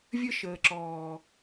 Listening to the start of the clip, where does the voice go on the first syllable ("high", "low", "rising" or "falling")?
high